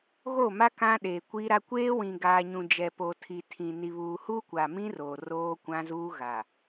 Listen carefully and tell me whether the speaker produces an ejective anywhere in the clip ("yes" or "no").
no